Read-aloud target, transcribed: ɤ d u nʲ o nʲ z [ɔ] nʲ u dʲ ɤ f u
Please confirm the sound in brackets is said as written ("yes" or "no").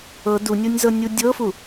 no